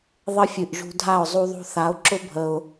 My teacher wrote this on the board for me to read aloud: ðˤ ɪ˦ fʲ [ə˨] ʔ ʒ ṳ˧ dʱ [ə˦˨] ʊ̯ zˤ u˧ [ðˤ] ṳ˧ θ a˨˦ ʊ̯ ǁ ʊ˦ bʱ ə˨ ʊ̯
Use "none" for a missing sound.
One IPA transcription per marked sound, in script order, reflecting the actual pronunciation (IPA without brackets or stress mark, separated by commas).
ɨ˨, a˦˨, ðˤ